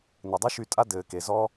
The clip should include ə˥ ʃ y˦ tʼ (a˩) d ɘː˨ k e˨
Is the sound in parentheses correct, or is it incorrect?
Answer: incorrect